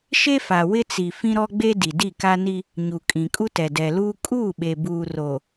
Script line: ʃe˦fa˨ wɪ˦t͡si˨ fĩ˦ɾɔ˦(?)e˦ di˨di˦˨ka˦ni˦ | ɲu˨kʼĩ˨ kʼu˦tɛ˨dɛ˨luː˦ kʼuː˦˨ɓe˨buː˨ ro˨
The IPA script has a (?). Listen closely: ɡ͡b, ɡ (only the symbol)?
ɡ͡b